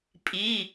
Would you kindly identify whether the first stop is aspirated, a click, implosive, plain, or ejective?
ejective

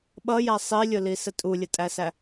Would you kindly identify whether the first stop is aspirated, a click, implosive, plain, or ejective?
implosive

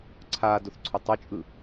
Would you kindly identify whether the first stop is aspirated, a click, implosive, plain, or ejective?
click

